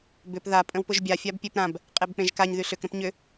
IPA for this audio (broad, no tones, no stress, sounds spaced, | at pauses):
b ʏ p ð a pʼ ə̃ w p ʊ ʒ bʲ a fʲ a b pʲ e p ɾ ã b | qʼ e b k͡p ẽ ʒ k a ɲ ð y ɬ ʏ k ɾ ə̃ p ɲ ʏ